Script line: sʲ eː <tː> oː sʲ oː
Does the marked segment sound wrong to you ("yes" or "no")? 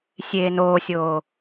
yes